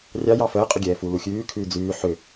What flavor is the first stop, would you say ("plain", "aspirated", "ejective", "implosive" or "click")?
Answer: ejective